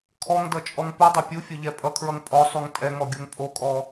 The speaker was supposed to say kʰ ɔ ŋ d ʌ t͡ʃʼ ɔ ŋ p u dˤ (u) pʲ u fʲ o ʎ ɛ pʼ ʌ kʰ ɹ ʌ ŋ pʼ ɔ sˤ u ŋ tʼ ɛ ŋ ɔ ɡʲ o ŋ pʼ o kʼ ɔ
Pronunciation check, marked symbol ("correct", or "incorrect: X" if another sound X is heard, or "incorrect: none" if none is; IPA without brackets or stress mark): incorrect: o